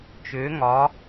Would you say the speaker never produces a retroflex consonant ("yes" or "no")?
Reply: yes